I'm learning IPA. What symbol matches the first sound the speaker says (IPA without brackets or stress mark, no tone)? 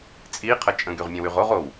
t͡sʼ